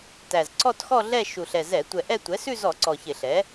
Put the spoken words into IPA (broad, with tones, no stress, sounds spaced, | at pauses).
t æ˨˩ z ǀ ɔ˥˧ t x ɔ˥˧ ɮ ɛ˥˧ ʃ u˨˩ ɬ ɛ˨˩ z ɛ˧˩˧ tʷ ɛ˨˩ ʔ ɛ˥˧ tʷ ɛ˩˥ s ʉ˥˧ z ɔ˧˩˧ ǀ ɔ˨˩ ç ɪ˧˩˧ ɬ ɛ˩˥